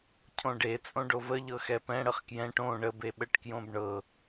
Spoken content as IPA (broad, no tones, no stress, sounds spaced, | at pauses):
cʰ õ ɖ e t͡sʼ õ ɖ o v ə ʎ ɤ x ɛ p ɛ̃ ɽ ə χ k j ɛ̃ ʈ õ ɳ ə b e ɓ ə ʈ k j õ b ɳ ɤ